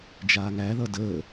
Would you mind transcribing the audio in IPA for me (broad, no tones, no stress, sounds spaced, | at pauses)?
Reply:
d͡ʒ aː ŋ æ ð ʌ d əː